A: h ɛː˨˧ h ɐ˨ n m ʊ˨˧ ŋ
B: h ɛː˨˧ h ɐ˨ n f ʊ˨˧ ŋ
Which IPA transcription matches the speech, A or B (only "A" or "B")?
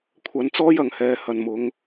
A